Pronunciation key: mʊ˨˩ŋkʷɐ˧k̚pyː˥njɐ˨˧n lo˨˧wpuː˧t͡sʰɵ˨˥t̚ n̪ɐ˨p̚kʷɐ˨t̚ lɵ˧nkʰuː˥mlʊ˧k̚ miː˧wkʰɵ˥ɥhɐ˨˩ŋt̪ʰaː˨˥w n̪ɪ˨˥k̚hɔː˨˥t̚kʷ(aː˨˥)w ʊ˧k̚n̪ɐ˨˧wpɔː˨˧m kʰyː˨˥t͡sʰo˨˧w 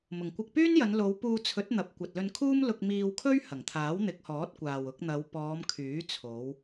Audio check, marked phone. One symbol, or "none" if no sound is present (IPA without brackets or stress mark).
aː˨